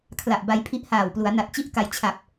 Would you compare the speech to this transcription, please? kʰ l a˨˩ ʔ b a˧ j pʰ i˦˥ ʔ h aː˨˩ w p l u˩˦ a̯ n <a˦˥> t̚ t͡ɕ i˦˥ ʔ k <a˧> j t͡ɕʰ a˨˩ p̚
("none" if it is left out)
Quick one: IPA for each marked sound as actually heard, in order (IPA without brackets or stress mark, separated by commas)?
a˨˩, a˧